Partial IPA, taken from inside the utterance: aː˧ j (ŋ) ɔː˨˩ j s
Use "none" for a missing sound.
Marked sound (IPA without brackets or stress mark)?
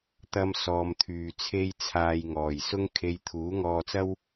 ŋ